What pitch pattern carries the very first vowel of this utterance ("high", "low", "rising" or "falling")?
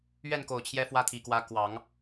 falling